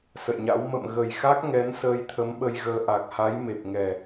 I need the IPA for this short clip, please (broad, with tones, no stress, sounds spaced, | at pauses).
s ə̰˧˨ j ɲ a̰˧˥ w m ə̰˧˨ m ɣ ə˨˩ j x a˦˥ k̚ ŋ ɛ˨˦ n s əː˧ j t̪ʰ ə˨˦ m ɓ ə˧ j ɣ əː˧ ʔ a˨˩ k̚ h a˨˦ j m e˨˩ p̚ ŋ ɛ˨˩